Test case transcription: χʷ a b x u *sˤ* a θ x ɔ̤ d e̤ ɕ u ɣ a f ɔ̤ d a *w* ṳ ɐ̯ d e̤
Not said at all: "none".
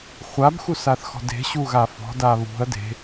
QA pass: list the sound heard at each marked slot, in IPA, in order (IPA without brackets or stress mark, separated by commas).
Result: s, β